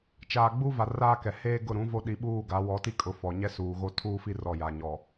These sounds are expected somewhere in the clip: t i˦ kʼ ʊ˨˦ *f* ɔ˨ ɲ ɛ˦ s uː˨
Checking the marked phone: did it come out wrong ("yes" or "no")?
no